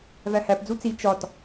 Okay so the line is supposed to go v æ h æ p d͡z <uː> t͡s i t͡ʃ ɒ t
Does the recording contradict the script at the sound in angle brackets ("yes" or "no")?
yes